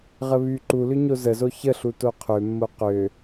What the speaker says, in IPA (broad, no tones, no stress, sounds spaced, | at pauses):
ʁ ə β y ǃ u l ʏ ɲ o z ə z o ç ə ɬ u t o qʰ ø mː o q ø